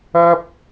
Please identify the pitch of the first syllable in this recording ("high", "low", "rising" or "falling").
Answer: high